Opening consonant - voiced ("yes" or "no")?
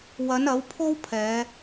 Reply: yes